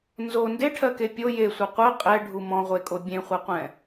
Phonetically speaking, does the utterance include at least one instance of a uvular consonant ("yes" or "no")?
yes